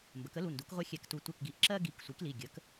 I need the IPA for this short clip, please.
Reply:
m b ə˩˧ k ə˩˥ l u˩˧˩ n d u˩˥ k ʁʷ ɛ˦ xʲ ɛ˧˩ k t u˧˩ tʷ ɛ˧˩ k ɡ i˩˥ ʔ ǁ ɜ˦ ɡ i˩˧˩ k sʷ i˩˥ k l i˩˧˩ ɡʲ ə˩˥ k

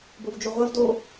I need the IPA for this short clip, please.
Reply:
b o v d͡ʒ o ʁʷ ɐ v d o

